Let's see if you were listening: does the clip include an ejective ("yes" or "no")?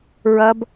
no